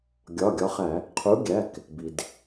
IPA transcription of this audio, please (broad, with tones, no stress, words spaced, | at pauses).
ɡʲɒ˩˧˩ɡʲɒ˨˦χæ˧˩˧ | qʰu˨˦ɡʲæ˩˧˩k | bi˩d